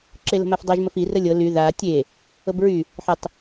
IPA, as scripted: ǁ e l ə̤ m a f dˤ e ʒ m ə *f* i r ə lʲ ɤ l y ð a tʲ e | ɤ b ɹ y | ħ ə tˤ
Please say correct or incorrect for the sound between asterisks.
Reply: correct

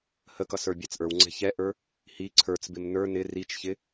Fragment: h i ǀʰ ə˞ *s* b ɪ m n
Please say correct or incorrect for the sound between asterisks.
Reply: incorrect: t͡s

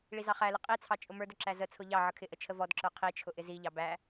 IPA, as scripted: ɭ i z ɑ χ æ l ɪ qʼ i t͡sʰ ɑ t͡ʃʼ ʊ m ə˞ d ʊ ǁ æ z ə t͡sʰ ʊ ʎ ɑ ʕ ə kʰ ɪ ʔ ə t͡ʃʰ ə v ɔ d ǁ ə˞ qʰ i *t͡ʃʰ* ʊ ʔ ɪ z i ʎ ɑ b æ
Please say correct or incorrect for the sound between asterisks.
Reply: correct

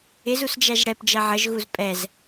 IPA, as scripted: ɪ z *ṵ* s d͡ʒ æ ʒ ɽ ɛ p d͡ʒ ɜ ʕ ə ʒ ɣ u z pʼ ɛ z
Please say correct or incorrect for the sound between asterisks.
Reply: incorrect: u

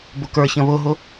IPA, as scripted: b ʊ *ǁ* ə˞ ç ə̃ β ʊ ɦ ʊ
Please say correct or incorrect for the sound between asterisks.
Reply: incorrect: k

